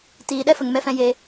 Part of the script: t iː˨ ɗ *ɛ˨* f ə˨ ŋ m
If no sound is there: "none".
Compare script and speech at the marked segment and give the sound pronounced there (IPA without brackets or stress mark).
ɛ˦